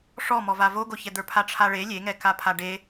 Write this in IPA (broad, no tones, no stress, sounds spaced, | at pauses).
ʂ ɔ m ɔ v a v o ɡ o ç ɛ d̪ ə˞ pʰ a ʈ͡ʂʰ a ɭ e lʲ e ŋ ɛ k a pʰ a ɖ e